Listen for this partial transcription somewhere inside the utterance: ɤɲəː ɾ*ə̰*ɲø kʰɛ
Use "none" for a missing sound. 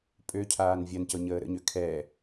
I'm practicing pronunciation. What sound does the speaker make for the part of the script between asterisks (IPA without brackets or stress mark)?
ə̰